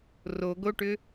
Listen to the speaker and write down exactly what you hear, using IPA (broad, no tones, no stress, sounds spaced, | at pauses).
r o ɡ o ʈ ʏ